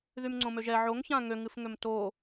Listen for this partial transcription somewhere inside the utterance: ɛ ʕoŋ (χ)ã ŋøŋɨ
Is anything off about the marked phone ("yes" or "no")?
yes